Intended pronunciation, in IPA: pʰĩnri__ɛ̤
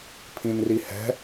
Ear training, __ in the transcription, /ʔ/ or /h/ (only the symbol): h